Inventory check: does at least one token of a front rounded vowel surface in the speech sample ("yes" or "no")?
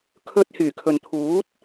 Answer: yes